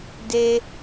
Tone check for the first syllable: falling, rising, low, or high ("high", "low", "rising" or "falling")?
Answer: high